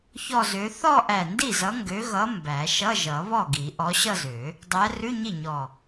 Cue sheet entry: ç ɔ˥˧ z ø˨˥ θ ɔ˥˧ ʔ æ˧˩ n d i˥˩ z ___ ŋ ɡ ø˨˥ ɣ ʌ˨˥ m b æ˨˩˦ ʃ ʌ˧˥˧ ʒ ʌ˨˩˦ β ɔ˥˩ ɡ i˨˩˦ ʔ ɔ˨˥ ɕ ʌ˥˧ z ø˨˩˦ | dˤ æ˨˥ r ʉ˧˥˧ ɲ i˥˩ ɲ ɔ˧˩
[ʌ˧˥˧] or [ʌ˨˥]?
ʌ˨˥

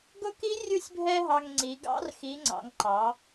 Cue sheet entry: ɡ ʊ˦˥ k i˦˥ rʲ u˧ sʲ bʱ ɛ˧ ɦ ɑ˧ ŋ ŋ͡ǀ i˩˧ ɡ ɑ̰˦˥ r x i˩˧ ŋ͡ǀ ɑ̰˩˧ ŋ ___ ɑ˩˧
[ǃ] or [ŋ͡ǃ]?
ǃ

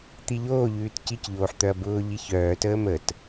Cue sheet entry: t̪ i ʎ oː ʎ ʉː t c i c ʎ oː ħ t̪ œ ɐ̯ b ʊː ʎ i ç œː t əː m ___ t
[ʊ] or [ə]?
ə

